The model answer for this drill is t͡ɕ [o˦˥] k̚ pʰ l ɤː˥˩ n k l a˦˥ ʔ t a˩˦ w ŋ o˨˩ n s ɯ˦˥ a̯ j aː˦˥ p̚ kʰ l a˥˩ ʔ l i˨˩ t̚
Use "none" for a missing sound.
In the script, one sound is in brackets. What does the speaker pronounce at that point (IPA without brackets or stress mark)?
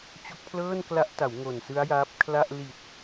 o˦˥